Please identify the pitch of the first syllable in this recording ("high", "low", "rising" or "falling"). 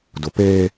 low